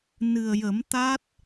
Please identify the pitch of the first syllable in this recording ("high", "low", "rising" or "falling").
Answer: low